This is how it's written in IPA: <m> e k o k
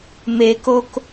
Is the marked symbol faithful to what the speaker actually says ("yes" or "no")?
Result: yes